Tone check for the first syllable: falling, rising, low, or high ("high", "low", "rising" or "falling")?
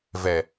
low